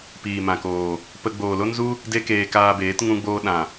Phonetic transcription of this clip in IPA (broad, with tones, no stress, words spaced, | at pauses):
piː˨mã˨koː˨ | pə˧ ɡ͡boː˨lo˦nzu˦ | de˦keː˧kaː˧beː˨˦t ŋũ˦ɡ͡boː˦ ɗã˨